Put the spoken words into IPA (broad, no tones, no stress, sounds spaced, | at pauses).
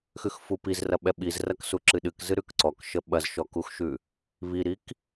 x ʉ x f u p i z r ɐ ɓ ɛ ɓ i z r ɐ k s u ǁ ɨ ɗ ɨ k z ɨ ɾ ʉ k ǀ ɔ k ʃ ə ɓ ɐ z ʃ ɔ k u x ʃ ʉ | β i ɾ i k